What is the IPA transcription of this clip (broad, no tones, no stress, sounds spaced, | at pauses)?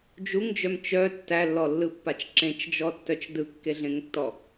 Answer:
d͡ʒ u ŋ d͡ʒ œ m t͡ʃ œ tː æ lː ɔ lː ɯ pː a t͡ʃ ǁ ẽ t͡ʃ d͡ʒ ɔ tː œ t͡ʃ d ɯ kː e ɮ ẽ ŋ tː ɔ